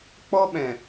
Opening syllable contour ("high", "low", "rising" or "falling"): high